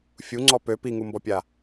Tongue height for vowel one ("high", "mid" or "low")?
high